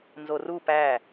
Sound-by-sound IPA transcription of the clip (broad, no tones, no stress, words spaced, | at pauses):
nzoru pæ